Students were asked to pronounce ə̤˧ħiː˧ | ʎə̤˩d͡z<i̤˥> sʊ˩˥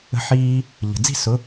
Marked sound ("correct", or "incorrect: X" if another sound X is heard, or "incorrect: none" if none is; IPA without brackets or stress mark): incorrect: i̤˥˩